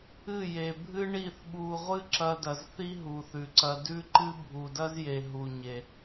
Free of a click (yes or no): no